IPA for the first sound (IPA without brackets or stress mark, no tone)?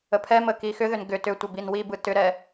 ə